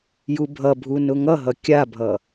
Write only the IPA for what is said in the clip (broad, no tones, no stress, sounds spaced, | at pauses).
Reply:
j u bʱ ʌ bʱ u n ʊ ŋ ʌ ɦ ʌ kʲ a bʱ ʌ